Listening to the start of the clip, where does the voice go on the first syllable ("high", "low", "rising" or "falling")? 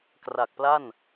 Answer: low